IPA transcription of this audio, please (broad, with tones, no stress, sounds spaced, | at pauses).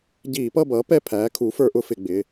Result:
ɟ iː˧˩˧ p ʌ˦˨ b ʌː˩˥ p ɛ˦˨ pʰ æː˩˥ kʰ u˩˥ f ə˞˦ ʔ ʊ˦ f ɪ˧˩˧ ɡ͡b ɪ˩˧˩